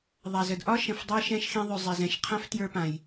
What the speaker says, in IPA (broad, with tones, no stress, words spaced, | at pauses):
ðˤa˩zə˩dʔɒ˥ ʃə̃˩f dˤə˞˧ʃɛ̃˧ʃxẽ˧ðˤʉ˩ zˤɛ˩zɛ̃˩ʃ qʰã˥ftjə˞˧ pã˩j